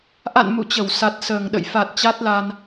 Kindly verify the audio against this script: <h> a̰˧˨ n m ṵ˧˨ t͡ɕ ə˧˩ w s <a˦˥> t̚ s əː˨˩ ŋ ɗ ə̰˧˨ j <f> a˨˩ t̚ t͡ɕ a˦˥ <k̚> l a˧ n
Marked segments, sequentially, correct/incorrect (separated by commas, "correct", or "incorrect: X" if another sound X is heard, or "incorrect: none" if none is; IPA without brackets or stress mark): incorrect: ʔ, incorrect: a˨˩, correct, incorrect: t̚